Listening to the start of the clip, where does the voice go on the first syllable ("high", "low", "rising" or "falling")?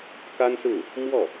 high